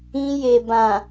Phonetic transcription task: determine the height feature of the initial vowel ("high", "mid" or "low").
high